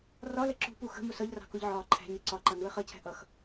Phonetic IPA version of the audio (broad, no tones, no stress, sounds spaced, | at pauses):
r ɒ l ə ǁ ṳ p u x ə̤ m ʊ s ʌ ʎ r ɑ̤ k ʊ ʎ ʕ ɒː ǃʰ æ̤ ɲ ə ǀ ɒ ǃ ʌ n u ə̯ χ ʌ cʰ æ̤ ʔ ʌ x